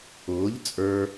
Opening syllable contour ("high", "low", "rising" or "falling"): rising